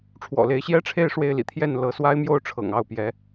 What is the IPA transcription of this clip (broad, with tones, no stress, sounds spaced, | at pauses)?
ʈ͡ʂʰ w ɔ̰˨˩ l e˧˥ ɪ̯ ɕ j ɛ˥ ʈ͡ʂʰ e˥˧ ɪ̯ ʂ w e˥˩ ɪ̯ l ḭ˨˩ t̪ʰ j ɛ˥˩ n l ɤ˧˥ s w a˥ ɪ̯ m j o˥ ʊ̯ ʈ͡ʂʰ ɤ̰˨˩ ŋ ɑ˥˩ ʊ̯ p j ɛ˧˥